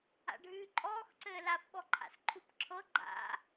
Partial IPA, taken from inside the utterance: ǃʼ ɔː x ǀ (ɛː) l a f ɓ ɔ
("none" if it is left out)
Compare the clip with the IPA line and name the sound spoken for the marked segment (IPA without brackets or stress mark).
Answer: ɘː